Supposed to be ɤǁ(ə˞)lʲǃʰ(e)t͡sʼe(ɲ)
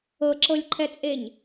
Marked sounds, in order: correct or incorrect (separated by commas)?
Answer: incorrect, incorrect, correct